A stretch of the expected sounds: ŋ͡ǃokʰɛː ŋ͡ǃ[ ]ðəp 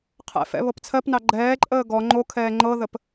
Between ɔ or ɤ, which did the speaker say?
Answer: ɤ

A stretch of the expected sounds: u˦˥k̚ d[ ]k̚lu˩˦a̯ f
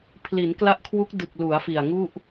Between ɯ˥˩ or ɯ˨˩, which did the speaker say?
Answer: ɯ˨˩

